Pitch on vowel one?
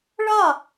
falling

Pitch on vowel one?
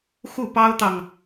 falling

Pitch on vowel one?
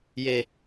low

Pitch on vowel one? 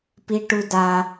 high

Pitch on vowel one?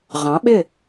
rising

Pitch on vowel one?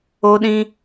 high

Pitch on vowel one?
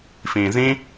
low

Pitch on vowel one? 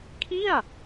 falling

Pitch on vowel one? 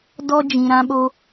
high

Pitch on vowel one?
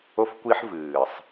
high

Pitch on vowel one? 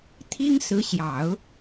high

